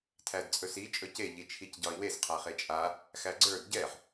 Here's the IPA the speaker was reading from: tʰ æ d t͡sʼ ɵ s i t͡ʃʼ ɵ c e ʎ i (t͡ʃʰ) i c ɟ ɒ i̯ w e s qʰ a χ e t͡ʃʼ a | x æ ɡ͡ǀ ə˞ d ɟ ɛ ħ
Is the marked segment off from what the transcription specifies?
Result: no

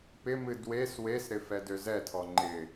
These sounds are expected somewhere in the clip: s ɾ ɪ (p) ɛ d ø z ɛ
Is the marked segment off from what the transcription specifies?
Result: yes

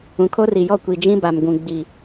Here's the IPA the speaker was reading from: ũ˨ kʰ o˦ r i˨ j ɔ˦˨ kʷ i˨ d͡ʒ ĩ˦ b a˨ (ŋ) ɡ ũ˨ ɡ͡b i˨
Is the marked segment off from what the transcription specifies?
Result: yes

